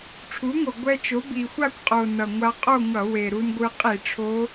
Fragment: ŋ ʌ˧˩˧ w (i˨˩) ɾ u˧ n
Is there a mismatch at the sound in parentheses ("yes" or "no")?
yes